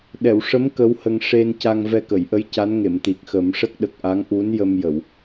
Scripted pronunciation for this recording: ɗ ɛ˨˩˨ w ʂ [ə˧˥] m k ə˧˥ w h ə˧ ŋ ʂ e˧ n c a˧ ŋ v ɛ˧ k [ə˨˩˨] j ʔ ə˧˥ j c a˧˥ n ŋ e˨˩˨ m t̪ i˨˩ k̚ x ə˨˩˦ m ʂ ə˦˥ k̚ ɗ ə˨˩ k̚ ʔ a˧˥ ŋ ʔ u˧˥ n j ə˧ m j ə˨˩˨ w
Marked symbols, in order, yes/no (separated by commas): yes, yes